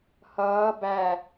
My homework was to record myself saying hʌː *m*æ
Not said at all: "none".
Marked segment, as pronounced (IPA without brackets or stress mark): b